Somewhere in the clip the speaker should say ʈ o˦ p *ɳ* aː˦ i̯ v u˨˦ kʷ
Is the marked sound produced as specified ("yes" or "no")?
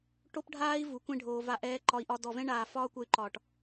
no